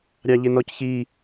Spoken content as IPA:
ɾʲ ɑ ʎ ɪ n ɔ c ç i

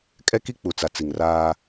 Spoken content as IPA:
kʼ ɛ˦ k i˦ k͡p u˨ t͡s a˨ t͡s i˨ ŋ r aː˦

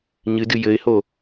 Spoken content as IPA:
ɲ ɨ d ɨ j ɘ ɪ̯ h o

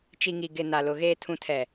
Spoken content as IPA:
t͡ʃ i˨ ŋ i˨ ɡ ɪ˨ n a˨ l ʊ˨ ɣ eː˨ tʰ ũ˨ tʰ ɛ˨

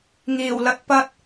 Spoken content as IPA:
ŋ iː˨˩ w l ɐ˧ t̚ p ɐ˧ t̚

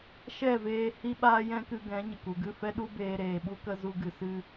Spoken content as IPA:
ʃ ɛ˦˨ v eː˧ h i˦ ɓ aː˦ j ɛ̃˦ k ɨ˧ ɡ ɛ̃˨˦ ɲ ə˨ k u˨ ɡ ɨ˦˨ f ɛ˦ ɗ u˦ b eː˧ ɾ eː˨ ɓ u˦ k ə˦ z u˧ ɡ ɨ˨ s ɨ˦

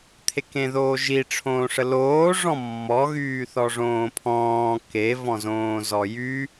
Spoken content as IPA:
t̪ʰ e k ẽ ð oː ʒ i ʈ͡ʂʰ õː ʂ ə l oː ʐ ɔ̃ mː ɔ ɣ yː θ ɔ ʐ õː pʰ ɔ̃ː k e v ɔ̃ z õː z ɔ j y

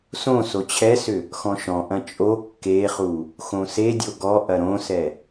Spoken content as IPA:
s õ s o t͡ɕʰ ɛ s ʏ | x ɔ̃ ʃ ɔ̃ ʔ ɐ̃ t͡ʃʼ o kː e χ u | x õ s e dʲ o ɡ ɔ ʔ ɐ ɾ õ s ɛ

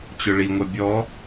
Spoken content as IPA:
t͡ɕ ʊ ɭ i ŋʷ ʌ bʲ ɔ

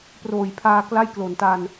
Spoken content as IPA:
p r oː˨˩ j pʰ aː˧ k l a˥˩ j k l o˩˦ n t a˧ n

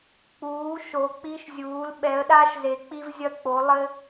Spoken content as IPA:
k͡p uː˩˧ ʃ o˩˧ k͡p i˧ ʃ zʲ uː˩˧ l ɓ ɛ˩˧ ə̯ ɗ a˧ ʃ z e˩˧ k͡p i˧ v zʲ ɐ˧ k͡p o˩˧ lˠ ɘ˧

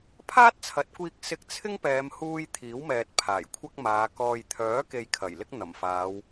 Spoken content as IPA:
pʰ aː˥ t̚ t͡sʰ ɐ˨˥ t̚ kʷ iː˧ k̚ s ɪ˧ k̚ t͡sʰ ɪ˥ ŋ p ɛː˨˧ m h uː˧ j t̪ʰ iː˨˥ w m ɛː˨ t̚ pʰ aː˨˩ j kʷʰ ɐ˥ k̚ m aː˨˧ k ɔː˨ j t̪ʰ œː˨˥ k e˧ j kʰ ɐ˨˩ j l ɪ˥ k̚ n̪ ɐ˨˩ m f aː˨˧ w

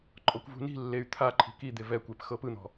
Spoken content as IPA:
ǃʼ ɔ kʷ v ṳ n i̤ lː e y̯ t̪ʰ a ǃʰ i̤ k i d̪ e v ɛ kʷ e p x ɤ p ɯ n̪ ɔ̤

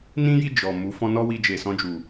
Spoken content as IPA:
n ĩ˦ j i˦˨ d͡ʒ ɔ˨ m u˨˦ f ɔ̃˦ n ɔ˦ w i˧ d͡ʒ e˨ s ɔ̃˧ d͡ʒ u˨

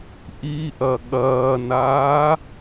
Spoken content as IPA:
ʔ i ʔ ɐ ɠ ɐː n aː

